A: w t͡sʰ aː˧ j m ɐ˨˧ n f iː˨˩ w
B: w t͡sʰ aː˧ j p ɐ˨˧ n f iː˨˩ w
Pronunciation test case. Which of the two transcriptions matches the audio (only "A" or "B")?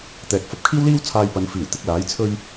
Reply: B